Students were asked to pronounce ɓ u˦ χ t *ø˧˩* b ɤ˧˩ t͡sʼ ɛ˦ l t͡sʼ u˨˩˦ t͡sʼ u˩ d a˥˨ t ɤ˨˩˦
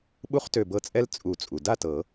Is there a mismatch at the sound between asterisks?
no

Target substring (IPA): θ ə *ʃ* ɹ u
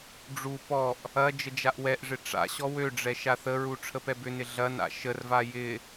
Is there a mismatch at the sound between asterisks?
yes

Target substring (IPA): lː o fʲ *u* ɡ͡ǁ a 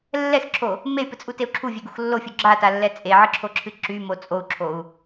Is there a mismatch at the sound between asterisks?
no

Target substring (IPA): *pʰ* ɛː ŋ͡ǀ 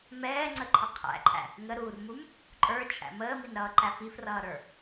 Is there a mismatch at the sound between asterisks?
yes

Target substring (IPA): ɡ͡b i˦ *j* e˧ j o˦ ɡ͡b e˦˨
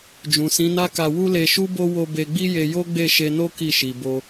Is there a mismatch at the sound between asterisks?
no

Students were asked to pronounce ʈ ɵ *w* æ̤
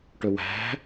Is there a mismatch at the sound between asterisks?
no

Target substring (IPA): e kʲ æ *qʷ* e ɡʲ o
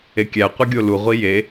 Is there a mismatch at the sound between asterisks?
no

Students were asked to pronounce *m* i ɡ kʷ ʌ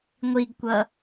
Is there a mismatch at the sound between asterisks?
yes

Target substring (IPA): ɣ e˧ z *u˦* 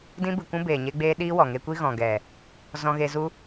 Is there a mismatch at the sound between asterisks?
no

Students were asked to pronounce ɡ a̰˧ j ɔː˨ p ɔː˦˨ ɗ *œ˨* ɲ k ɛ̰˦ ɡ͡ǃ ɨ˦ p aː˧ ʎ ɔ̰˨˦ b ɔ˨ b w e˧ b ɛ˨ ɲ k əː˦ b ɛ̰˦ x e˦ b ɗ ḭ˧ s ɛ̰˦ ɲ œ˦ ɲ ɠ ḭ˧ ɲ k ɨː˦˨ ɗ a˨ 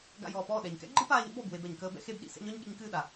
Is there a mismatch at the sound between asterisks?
yes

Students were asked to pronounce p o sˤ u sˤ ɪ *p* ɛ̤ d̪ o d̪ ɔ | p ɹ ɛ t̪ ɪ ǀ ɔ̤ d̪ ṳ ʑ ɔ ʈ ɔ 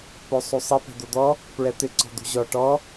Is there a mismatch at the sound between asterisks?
no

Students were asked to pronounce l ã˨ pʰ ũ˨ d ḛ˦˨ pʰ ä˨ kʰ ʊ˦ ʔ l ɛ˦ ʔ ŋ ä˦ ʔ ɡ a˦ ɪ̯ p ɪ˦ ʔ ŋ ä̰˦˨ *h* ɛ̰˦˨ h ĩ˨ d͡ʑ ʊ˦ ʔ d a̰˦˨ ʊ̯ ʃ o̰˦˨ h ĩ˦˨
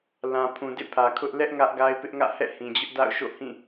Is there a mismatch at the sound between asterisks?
no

